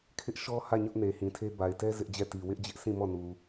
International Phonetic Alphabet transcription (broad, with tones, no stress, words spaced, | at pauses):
kʰɪ˦ʔʃɔ˦ hä˦˨ɲʊ˦ʔ ne˨hĩ˨tʰe˦ ba˨ɪ̯tɛ˦ zɪ˦ʔd͡ʑɛ˦˨ti˨ wɪ˦ʔd͡ʑɪ˦ʔsʰĩ˦˨ mɔ˦˨nu˨